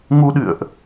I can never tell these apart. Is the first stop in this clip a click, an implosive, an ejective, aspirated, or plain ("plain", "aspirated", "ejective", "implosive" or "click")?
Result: implosive